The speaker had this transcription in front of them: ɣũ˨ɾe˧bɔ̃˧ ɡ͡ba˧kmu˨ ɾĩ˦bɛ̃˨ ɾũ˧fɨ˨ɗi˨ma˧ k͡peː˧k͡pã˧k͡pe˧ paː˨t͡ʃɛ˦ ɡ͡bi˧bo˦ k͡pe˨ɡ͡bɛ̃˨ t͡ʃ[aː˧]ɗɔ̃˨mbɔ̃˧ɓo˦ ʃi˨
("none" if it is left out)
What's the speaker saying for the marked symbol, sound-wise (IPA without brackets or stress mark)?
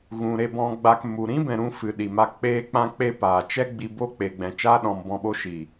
aː˦